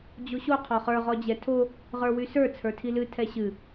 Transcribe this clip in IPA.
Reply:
d͡ʑ o ɕ o qʰ ɔ χ ə˞ ʁ ɔ d͡ʑ ɛ tʰ o | ʁ ə˞ w y s ə˞ t͡sʰ ə˞ tʰ i l ɨ tʰ ɛ ɕ ɨ

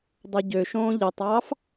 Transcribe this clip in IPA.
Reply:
dˤ o ɟ ø ʃ õː ʎ i tˤ ɑː f

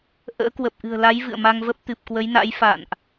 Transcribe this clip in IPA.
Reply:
ʔ ə̰ː˧˥ k w ə˨˩ p̚ ʔ ɨ̤˨˩ ə̯ l a˨˦ j v ɨ̰˧˨ ə̯ m a˧ ŋ v ə˦˥ p̚ t̪ ɨ˨˩ p̚ k w ə˨˦ j n a̰˧˥ j f a̰ː˧˨ n ʔ

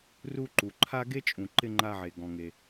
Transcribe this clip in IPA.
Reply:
r u˦ ǃ u˨ ǃʰ a˥ ɡ e˥ t͡ʃʼ ũ˨ ǃ ɪ˦ ŋ͡ǃ a˦ ʕ e˨ ɡ ɔ̃˨ ŋ e˨

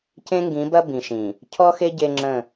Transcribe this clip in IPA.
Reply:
c ẽ˦ ŋ ɡ ĩ˨˦ b ɐ˦ b ĩ˨ ʃ ĩ˨ | cʰ ɔ˦ x e˦ ɟ e˦ ŋ͡ǁ ə̃˦˨

